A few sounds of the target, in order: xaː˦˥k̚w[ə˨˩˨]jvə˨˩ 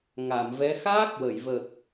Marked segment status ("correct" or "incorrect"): correct